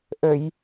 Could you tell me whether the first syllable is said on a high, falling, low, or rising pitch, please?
low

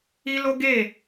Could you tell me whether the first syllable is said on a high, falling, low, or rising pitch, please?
high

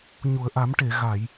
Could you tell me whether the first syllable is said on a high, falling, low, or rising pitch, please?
low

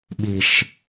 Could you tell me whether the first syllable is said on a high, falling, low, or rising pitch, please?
low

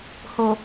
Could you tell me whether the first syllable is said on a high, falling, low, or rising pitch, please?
low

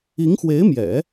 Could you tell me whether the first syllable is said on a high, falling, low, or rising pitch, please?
rising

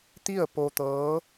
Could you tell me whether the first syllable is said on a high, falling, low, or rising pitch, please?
falling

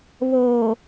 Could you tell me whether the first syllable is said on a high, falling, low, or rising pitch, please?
low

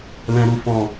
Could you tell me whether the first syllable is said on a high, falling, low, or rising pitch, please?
low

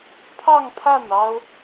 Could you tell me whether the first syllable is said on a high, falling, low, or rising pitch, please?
falling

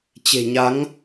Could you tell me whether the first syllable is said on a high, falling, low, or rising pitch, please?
low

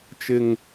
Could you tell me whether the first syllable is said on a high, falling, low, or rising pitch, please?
low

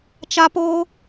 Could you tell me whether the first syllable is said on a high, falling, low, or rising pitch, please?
high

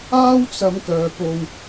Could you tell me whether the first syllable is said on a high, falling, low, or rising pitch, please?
high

